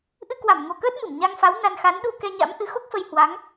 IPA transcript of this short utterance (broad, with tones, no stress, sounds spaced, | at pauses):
ʔ ɨ˧ k w a˧˩ m ŋ o˨˩ k əː˦˥ t̚ m ɨ˧˩ m ɲ a˧ ŋ f a˨˦ w n a˧ n x a˨˦ n ɗ u˧ k ɛ˧ ɲ a̰˧˥ m ʔ ɨ˨˦ x o˦˥ k̚ f ə˧ j h w a˨˦ ŋ